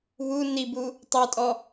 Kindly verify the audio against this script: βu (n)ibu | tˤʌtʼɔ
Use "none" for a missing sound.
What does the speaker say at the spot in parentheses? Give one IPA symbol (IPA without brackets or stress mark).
n